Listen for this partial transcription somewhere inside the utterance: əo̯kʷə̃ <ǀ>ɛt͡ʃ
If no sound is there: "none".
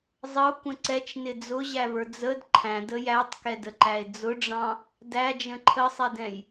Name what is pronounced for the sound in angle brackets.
ǀ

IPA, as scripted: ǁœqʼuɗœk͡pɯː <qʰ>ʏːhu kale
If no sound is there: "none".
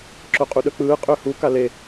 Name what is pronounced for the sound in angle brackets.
qʼ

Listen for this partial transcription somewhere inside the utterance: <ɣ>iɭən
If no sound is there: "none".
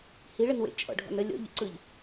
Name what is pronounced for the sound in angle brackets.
h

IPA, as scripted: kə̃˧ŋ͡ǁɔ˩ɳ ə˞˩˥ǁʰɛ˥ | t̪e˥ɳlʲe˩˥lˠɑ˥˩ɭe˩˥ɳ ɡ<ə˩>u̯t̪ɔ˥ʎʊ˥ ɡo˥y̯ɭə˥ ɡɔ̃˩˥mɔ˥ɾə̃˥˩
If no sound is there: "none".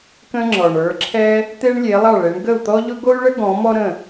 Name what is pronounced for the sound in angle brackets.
ə˥˩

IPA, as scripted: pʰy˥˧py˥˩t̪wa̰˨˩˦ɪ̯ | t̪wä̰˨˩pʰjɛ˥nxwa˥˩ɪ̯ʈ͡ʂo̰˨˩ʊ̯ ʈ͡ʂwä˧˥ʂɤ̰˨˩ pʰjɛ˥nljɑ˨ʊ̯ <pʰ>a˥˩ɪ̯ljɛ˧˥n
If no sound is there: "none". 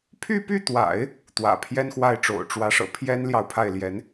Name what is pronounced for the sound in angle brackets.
pʰ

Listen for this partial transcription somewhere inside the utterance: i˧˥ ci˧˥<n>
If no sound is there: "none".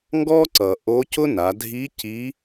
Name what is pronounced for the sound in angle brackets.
none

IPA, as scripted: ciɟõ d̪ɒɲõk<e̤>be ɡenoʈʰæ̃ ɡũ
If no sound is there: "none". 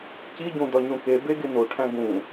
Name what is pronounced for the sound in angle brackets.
e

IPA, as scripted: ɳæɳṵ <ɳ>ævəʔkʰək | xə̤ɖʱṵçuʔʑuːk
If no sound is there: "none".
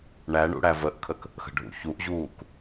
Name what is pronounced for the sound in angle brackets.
ɽ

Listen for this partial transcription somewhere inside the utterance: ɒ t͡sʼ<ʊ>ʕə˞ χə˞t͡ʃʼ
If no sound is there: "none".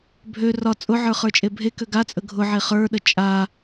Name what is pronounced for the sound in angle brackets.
ʊ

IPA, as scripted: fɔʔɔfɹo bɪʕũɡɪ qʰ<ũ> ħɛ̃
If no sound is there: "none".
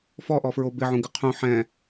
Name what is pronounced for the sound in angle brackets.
ũ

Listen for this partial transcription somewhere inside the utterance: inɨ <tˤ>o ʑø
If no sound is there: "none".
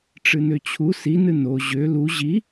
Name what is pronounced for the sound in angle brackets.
n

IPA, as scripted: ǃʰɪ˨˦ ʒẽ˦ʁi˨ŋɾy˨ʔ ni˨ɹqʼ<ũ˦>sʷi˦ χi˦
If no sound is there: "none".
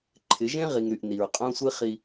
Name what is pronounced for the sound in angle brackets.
õ˦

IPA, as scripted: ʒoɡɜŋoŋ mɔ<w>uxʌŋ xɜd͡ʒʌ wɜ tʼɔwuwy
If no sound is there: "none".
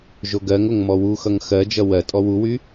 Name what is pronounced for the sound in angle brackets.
w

